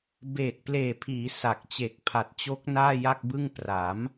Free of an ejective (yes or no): yes